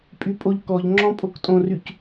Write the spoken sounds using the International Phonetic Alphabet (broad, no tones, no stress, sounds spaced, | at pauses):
pʼ y pʼ o ʎ k ɔ ʎ ŋ͡ǁ ɔ̃ pʼ o k tʼ õ r y c